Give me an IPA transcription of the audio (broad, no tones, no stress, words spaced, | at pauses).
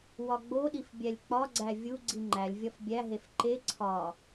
wɒɡ͡boɗif bʲælʲk͡pɒɡ͡ǀæ vʲuɡ͡ǀi ŋ͡ǃælʲvʲɒf bʲæɦef ǃe ǀʰɒ